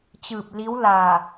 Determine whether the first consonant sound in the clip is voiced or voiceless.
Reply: voiceless